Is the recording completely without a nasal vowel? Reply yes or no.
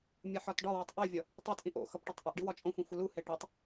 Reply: no